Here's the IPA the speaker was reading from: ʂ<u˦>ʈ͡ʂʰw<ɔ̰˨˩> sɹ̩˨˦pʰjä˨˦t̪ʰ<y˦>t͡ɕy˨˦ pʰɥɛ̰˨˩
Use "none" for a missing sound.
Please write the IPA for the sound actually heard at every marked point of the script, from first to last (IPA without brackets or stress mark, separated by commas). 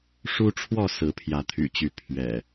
u˦, ɔ˥˨, y̰˨˩